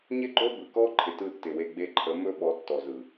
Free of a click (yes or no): no